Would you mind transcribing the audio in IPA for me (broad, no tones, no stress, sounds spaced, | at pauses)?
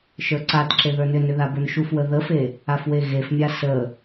ʃ ə˞ ǀ a t ǁ e ð ə˞ n ʏ n ʏ ð a b ə˞ n ʃ u f w ə ð ə f e | a f w e ɣ e f mʲ a s ə